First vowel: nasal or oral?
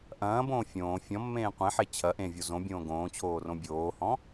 nasal